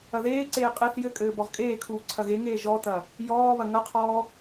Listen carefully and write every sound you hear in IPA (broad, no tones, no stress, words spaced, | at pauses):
ɐðeːǀeː qʼeθ jɘkʼɘː bɔʁkʼeːkʰuː ǀʰɐɣeŋeː ʒɔtɐ | jɔːβɐ ŋɐqʰɔː